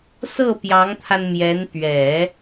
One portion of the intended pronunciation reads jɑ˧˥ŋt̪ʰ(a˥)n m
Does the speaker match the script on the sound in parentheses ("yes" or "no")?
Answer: no